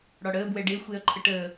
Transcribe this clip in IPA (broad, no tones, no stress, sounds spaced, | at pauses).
ɽ ɒ ɽ əː b w ɛ ɖ e xʷ e ɐ̯ ǃʰ ə ʈ əː